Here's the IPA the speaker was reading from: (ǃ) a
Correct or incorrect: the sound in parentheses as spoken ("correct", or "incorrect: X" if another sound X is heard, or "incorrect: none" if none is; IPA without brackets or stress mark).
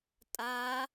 incorrect: tʼ